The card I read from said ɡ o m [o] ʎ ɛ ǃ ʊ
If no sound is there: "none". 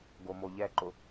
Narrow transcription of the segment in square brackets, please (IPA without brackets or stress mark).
o